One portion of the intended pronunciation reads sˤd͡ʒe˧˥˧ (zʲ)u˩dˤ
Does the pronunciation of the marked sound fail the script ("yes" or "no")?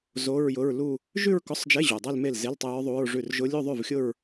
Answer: yes